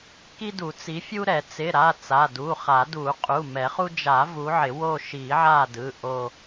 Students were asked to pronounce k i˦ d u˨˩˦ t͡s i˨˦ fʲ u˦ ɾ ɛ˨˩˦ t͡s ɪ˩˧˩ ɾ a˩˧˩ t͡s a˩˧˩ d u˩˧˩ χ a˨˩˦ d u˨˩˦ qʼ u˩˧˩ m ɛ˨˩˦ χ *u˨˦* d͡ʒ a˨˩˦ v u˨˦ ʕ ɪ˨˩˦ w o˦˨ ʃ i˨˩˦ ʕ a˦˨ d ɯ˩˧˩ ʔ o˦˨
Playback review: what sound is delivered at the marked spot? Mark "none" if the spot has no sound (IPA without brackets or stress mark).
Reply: u˦